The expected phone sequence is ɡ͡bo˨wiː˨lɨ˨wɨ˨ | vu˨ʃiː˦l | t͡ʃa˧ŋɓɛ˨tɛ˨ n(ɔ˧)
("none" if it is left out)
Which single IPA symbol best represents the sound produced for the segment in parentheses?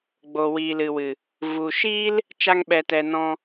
ɔ̃˧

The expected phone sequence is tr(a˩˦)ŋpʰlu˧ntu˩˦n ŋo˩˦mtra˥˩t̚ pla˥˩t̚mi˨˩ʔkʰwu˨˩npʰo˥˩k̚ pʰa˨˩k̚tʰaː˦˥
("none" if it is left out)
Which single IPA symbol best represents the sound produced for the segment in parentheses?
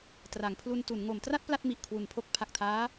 a˩˦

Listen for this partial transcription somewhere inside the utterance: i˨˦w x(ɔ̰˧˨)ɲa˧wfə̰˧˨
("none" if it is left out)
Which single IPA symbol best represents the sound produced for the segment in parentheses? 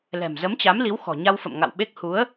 ɔ̤˨˩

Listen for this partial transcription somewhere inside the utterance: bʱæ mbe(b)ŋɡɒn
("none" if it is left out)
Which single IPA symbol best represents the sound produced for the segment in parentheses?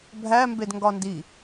d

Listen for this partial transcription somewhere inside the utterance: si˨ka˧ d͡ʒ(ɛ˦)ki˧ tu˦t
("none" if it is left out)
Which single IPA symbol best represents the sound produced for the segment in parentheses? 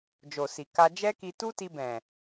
ɛ˦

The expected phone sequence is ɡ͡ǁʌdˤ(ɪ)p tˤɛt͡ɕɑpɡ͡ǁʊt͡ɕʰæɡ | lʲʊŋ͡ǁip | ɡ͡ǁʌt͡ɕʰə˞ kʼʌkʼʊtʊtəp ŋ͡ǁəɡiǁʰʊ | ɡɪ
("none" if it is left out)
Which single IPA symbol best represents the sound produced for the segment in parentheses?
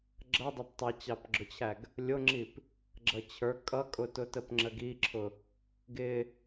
ɪ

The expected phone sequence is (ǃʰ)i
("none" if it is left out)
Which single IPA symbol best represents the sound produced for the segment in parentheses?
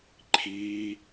ǃʰ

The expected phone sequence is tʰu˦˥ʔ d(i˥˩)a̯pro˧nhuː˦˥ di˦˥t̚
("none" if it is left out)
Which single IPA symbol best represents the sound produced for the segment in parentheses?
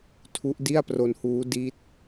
i˥˩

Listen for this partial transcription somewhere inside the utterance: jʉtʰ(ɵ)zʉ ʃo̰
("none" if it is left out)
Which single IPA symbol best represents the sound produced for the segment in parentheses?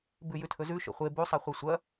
ɵ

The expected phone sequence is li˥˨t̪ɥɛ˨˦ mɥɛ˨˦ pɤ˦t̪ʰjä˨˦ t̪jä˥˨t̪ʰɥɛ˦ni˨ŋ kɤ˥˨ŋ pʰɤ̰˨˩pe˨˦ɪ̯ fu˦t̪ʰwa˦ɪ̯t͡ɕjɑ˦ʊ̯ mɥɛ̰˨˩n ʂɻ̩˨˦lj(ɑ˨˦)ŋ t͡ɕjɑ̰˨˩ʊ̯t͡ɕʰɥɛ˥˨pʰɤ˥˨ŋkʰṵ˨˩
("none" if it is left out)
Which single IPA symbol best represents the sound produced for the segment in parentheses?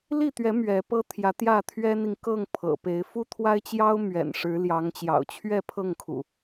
ɑ˨˦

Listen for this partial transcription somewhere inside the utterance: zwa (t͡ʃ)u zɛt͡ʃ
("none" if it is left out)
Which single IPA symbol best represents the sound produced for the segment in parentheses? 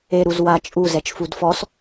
t͡ʃʼ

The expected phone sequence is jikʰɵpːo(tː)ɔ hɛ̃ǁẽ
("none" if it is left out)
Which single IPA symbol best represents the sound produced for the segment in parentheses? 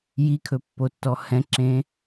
tː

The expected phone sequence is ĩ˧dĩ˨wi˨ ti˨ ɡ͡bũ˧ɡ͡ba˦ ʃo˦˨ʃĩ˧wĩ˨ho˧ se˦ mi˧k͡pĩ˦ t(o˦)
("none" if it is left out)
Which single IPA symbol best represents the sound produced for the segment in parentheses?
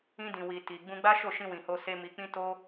o˦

